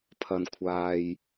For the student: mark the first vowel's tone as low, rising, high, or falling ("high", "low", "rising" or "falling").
low